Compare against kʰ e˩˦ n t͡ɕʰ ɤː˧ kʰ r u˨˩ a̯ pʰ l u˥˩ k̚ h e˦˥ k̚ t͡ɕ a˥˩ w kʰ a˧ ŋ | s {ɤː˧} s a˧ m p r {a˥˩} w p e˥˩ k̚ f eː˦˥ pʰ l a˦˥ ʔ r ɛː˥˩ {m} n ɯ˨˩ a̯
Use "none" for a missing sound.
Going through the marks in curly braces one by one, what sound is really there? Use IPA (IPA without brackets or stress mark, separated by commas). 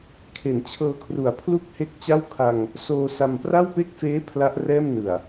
oː˧, a˥˩, m